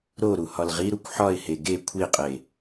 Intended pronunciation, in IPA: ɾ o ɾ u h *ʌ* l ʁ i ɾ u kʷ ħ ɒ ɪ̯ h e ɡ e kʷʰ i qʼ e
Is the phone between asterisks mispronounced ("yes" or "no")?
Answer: yes